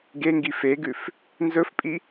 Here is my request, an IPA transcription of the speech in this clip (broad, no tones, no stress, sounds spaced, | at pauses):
ɡ e ŋ ɡ i f e ɡ ʉ f | n z ɵ f pʼ i